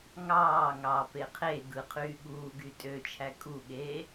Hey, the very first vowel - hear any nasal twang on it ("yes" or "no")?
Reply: no